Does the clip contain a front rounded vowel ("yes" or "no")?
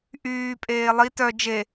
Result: yes